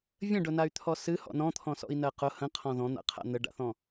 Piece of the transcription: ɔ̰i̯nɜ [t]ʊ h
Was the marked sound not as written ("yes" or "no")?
yes